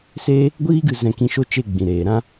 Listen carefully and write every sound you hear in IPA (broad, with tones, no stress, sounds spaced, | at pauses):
s e˦ | ɡʷ iː˦ ɡ ɨ˧ z ɛ̃˧ k ĩ˧ ʃ o˦ t͡ʃ e˧ ɡ͡b ĩ˨ ɾ eː˨ ɾ ã˦